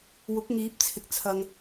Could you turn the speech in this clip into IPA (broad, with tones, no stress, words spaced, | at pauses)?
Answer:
wʊ˨˥k̚ŋiː˨˥p̚t͡sʰɪ˨k̚ t͡sʰɐ˨ŋ